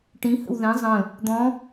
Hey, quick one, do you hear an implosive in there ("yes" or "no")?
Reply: no